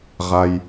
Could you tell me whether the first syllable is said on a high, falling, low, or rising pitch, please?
high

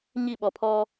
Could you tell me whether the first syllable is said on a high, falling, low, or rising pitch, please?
falling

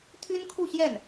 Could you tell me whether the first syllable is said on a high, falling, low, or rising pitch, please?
high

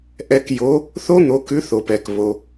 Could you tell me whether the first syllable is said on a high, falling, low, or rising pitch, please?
rising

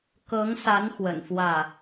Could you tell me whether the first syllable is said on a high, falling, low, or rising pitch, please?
rising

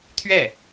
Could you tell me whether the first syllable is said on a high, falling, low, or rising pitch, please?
falling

